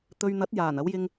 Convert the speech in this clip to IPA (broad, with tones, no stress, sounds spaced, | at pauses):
t̪ ɵ˨ ɥ n̪ ɐ˨˥ t̚ j aː˨˩ n ɐ˨˥ w j ɪ˥ ŋ